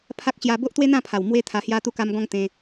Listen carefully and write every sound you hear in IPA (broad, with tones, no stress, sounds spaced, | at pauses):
pʰ a˦ k̚ ɕ j a˧ b o˦ ʔ t̪ w e˦ n̪ ã˥˧ pʰ a˨˩ w m w e˦ t̪ʰ a˧ h j a˧ t̪ u˧ k a˧ m ɡ ɔ̃˧ ŋ t̪ ẽ˧